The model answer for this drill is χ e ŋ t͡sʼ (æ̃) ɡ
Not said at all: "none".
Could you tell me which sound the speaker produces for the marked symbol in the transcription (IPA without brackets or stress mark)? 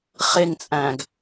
æ̃